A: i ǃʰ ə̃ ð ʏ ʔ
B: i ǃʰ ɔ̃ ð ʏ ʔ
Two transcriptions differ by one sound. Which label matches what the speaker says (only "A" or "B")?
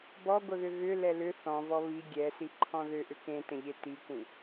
B